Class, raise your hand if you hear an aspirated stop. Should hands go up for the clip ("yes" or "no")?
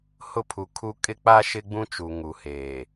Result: yes